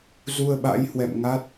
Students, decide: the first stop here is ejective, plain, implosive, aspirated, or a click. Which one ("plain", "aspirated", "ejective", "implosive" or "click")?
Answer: implosive